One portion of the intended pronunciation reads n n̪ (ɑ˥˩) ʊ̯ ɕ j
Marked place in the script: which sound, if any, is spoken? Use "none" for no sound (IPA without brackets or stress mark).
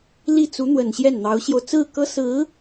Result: ɑ˧˥